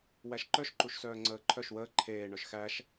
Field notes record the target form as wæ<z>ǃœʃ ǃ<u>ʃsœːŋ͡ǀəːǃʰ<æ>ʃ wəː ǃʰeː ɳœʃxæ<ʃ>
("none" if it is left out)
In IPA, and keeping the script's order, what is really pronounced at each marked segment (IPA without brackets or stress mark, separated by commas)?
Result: ʃ, u, œ, ʃ